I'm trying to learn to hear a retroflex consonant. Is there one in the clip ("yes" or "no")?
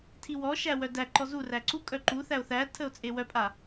no